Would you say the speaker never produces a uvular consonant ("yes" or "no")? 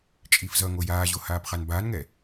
no